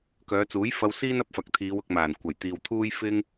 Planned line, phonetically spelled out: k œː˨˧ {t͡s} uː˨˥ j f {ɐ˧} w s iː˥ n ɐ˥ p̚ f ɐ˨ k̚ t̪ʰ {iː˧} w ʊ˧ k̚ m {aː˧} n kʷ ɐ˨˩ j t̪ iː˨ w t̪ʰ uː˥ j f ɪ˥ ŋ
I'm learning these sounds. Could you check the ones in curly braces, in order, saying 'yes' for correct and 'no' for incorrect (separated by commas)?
yes, yes, no, no